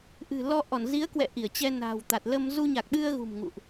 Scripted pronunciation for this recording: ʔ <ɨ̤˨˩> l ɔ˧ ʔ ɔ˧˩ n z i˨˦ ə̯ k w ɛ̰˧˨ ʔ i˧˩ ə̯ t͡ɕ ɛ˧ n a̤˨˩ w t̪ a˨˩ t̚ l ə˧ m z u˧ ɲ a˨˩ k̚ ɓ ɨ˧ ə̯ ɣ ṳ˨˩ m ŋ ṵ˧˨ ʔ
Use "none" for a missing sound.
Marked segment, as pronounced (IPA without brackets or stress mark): ɨ̤˨˩